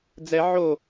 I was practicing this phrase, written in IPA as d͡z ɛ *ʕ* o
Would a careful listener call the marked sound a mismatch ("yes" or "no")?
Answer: no